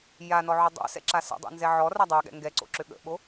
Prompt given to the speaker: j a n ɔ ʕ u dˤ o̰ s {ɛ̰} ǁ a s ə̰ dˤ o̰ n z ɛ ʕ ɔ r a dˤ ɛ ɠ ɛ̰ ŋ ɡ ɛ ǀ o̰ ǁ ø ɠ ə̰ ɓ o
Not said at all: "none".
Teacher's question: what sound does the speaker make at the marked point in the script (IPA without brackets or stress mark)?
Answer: ɛ̰